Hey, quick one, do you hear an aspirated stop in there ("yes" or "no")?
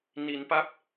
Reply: no